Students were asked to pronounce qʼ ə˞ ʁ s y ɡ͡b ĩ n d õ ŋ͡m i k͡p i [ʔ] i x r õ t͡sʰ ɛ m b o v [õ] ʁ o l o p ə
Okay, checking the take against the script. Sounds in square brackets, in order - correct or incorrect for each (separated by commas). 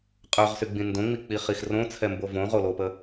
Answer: incorrect, correct